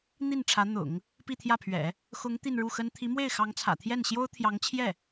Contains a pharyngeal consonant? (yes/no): no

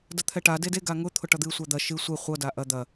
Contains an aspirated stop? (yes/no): yes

